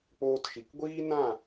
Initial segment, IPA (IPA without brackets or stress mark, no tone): k͡p